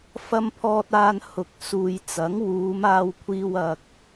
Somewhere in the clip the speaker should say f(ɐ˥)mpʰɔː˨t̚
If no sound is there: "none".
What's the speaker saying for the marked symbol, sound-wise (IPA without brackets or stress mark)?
ɐ˨